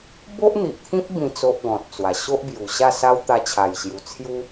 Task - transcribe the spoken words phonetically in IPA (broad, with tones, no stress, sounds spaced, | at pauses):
b o˦ ʔ n̪ i˨ ʔ t̪ʰ ĩ˦ p̚ b ĩ˥˧ t͡s o˦ ʔ ɡ ɔ̃˨ t̚ t͡s w a˨˩ ɕ o˦ ʔ b j u˨˩ ɕ a˥˧ s a˦ w t̪ a˧ t͡ɕʰ a˨˩ j ɕ j u˨˩ t͡sʰ j u˦